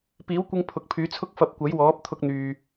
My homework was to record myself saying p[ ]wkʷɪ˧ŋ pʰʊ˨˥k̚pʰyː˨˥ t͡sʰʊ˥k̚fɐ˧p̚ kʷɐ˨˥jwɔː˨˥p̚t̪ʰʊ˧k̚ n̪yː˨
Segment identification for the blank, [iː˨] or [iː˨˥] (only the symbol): iː˨˥